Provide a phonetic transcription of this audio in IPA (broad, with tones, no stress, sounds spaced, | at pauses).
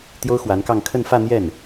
t̪ j o˥ ʊ̯ x w a˧˥ n k ɑ˥˧ ŋ kʰ ə˥˧ n f ä˥˧ n̪ j ɛ˥˩ n